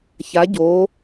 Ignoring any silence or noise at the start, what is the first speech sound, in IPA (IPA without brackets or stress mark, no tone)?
ç